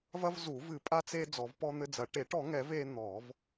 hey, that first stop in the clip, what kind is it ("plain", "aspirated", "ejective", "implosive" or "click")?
ejective